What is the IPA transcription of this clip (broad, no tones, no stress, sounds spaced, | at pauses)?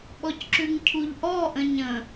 ɓ ɔ c ǁ ʉ ŋ cʰ u ʎ ʔ ɔ ʔ ə̃ ɲ ə̃